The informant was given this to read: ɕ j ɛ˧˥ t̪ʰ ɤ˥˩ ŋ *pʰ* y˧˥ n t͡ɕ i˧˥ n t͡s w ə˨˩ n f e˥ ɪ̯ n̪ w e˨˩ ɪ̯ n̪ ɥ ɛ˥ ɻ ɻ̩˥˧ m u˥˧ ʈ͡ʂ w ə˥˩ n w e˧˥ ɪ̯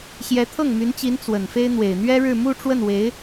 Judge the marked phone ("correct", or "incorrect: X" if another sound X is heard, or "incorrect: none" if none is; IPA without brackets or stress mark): incorrect: m